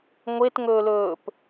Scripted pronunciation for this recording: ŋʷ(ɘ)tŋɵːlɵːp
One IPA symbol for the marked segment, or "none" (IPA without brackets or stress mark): e